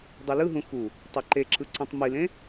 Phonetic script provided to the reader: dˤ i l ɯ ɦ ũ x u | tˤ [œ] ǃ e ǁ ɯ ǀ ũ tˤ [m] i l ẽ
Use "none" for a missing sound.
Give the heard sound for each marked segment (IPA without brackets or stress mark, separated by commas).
ɛ, m